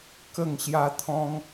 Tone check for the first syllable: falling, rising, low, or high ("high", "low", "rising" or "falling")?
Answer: falling